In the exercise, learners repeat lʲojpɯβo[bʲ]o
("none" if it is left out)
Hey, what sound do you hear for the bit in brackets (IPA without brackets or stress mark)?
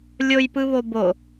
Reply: b